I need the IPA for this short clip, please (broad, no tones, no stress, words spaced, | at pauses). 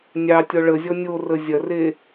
nʲɑ tʲɔɭəzʲɔ nʲorə zʲɐre